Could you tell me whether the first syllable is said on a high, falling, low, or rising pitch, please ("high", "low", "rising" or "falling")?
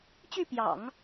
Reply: falling